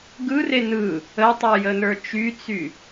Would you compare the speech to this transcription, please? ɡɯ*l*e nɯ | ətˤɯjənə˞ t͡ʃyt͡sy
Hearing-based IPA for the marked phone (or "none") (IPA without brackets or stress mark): r